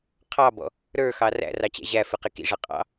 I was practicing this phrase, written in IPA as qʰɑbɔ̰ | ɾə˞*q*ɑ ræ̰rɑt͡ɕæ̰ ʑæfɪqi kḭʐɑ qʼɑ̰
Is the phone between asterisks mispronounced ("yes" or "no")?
yes